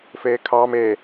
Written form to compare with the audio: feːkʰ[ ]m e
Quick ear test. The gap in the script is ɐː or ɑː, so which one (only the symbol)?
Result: ɑː